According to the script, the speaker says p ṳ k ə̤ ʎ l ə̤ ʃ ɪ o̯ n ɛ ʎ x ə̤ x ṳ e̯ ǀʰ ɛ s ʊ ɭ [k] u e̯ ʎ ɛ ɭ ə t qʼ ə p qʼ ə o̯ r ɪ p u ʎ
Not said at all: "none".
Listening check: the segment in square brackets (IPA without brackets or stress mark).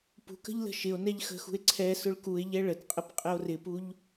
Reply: k